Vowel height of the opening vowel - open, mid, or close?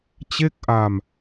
mid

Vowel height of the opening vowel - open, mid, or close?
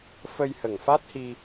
mid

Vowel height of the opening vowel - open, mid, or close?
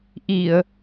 close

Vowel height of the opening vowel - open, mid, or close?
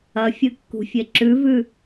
open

